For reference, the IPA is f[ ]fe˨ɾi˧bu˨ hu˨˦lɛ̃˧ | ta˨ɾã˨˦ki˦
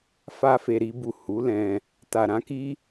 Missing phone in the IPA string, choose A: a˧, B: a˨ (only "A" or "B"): A